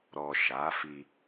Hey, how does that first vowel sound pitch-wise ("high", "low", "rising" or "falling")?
low